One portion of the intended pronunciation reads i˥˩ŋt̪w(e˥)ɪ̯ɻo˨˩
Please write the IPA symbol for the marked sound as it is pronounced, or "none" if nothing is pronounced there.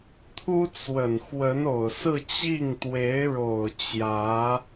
e˧˥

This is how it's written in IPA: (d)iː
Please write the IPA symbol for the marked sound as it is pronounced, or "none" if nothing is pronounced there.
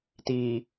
t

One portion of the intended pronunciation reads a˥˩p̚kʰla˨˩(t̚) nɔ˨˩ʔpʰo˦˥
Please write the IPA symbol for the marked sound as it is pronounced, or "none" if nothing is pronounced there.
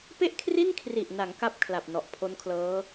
p̚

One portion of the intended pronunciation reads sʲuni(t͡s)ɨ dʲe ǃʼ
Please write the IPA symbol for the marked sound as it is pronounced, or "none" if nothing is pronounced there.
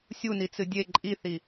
t͡s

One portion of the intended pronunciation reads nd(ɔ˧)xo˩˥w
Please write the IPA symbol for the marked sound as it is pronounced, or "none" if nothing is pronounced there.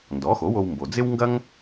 ɔ˩˥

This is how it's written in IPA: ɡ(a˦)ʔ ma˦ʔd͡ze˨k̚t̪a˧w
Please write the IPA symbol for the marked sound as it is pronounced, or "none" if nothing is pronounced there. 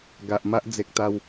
a˨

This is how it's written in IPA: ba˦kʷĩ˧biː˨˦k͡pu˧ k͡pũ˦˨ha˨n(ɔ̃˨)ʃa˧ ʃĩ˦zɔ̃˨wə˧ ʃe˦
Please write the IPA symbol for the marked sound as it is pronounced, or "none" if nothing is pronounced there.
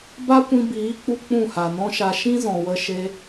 ɔ̃˦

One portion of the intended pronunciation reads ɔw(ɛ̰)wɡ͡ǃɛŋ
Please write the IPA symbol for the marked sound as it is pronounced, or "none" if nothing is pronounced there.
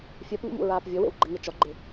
ḛ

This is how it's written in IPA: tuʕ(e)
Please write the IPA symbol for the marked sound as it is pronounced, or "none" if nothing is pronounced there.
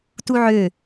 ø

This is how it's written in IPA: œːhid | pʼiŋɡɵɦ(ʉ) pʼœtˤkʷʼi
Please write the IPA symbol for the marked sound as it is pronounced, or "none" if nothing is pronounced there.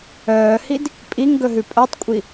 ʉ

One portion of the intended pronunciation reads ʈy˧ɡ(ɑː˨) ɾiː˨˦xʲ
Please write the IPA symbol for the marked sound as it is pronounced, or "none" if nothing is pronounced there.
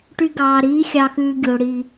ɑː˨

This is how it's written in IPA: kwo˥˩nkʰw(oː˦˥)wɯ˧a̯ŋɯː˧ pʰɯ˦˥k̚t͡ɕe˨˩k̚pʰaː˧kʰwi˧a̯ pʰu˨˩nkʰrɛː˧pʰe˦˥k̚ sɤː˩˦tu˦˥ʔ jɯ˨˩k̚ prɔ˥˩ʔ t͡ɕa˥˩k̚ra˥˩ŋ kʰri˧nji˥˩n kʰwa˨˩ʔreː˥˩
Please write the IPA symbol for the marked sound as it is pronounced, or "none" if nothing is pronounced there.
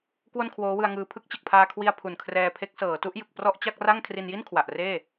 oː˦˥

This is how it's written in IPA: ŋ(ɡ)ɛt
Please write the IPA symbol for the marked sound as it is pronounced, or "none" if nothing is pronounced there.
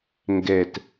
ɡ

